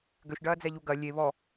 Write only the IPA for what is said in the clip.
ɡ ø ʃ ɖ ɐː d͡z ɛ ʎ u ɡ ɐ lʲ e β ɔ

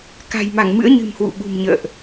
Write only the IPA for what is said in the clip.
k a̤˨˩ j m a˧˩ ŋ m ɨ̰˧˥ ə̯ ɲ ɨ̤˨˩ m h w ṵ˧˨ ɓ ṳ˨˩ m ɲ ə̰ː˧˨ ʔ

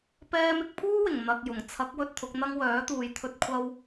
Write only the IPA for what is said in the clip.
p ɛː˧ m ɪ˧ k̚ pʰ uː˥ w ɪ˨˩ ŋ n̪ ɐ˧ k̚ j ʊ˨˩ ŋ t͡sʰ ɐ˨˥ k̚ w ɵ˧ t̚ t̪ʰ ʊ˨˥ k̚ n̪ ɐ˥ ŋ w œː˨˥ t̪ uː˨ j t̪ʰ ɵ˧ t̚ kʷʰ ɐ˧ w

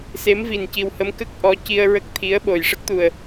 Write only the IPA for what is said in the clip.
s e˧˥ m v i˨˩ n c i˨˩ w h ə˧˥ m k ə˦˥ k̚ ʔ ɔ˧˥ c i˧ ə̯ ɹ ə˦˥ k̚ t̪ʰ i˧˥ ə̯ ɓ o˨˩ j ʂ ə˦˥ k̚ t̪ u˨˩ ə̯

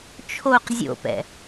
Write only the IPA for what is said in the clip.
t͡ʃʰ o q zʲ o̰ p ɛ̰

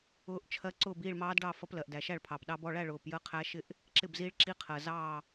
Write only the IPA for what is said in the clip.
ʊː˦˥ ʔ t͡ʃʰ ɜ˦˥ ǀ ʊː˥˧ b iː˥˧ ɭ m ɑː˦˥ d ɖ ɑ˥˧ f ʌ˦˥ p l ɜ˨ ʔ d æ˨ ʃ æ˥˧ ɭ pʰ ɑ˨ p ɗ ɑ˦˥ b ɔ˥˧ ɭ æ˥˧ ɭ ʊː˨ p j ə˥˧ qʰ æ˦˥ ʃ ɪ˥˧ ʔ | ǁ ɪ˥˧ b z i˦˥ ɭ ǁ i˦˥ qʰ ɜ˨ z ɑː˥˧

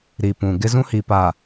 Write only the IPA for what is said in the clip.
ɾ i˨ p ũ˨ ɡ ɪ˦ z ũ˦ h i˨ p a˨

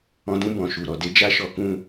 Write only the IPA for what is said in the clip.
ɔ̃˧ d ũ˦ b ɔ̃˧ ʃ u˨ ɾ ɔ˨ d e˧ d͡ʒ a˦ ʃ ɔ˧ k ũ˧

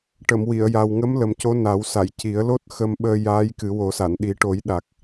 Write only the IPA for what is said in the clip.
ʈ ə˨˩˨ m w i˨˩˨ ə̯ j a˨˩ w ŋ ə˧˥ m l ə˨˩ m c o˧˥ n a˨˩˦ w s a˨˩˨ j c i˨˩˦ ə̯ l o˦˥ t̚ x ə˧ m ɓ əː˧ j aː˧˥ j k ɨ˨˩˦ w o˨˩˦ s a˨˩˨ n ɗ i˨˩˦ ʈ o˨˩˦ j ɗ a˨˩ k̚

